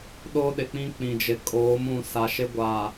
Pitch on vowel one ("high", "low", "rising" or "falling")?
high